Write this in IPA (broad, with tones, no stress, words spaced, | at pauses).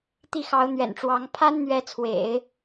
t̪i˥˩xɑ˧˥ʊ̯n̪ɥɛ̰˨˩nʈ͡ʂwɑ˧˥ŋ pʰa˥nn̪ɥɛ˧˥t͡sʰwḛ˨˩˦ɪ̯